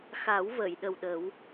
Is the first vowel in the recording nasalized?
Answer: no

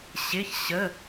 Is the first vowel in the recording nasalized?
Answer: no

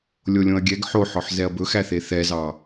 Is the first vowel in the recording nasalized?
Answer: no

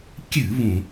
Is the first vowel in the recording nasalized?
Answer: no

